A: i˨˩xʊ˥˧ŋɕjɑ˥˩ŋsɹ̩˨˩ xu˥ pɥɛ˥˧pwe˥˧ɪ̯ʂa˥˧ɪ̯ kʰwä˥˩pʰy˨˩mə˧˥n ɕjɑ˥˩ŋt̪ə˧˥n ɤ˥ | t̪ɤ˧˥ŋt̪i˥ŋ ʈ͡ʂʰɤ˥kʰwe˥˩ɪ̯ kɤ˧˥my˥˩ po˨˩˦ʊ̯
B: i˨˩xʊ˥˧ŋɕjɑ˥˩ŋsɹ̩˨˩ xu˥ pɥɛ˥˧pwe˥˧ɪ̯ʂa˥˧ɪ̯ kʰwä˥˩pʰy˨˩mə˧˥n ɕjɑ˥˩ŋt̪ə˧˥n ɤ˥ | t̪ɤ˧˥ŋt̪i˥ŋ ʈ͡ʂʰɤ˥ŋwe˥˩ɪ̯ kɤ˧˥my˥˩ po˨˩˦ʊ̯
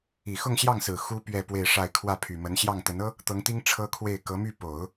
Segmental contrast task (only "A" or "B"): A